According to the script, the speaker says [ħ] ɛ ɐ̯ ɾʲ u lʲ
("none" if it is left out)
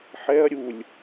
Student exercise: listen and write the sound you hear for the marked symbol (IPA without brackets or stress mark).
ħ